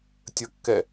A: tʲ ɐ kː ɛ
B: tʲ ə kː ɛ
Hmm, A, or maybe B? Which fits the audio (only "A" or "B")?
B